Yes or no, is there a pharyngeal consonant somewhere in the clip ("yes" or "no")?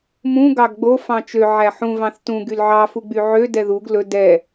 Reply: yes